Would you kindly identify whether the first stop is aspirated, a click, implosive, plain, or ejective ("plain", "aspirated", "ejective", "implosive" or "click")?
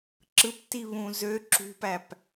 click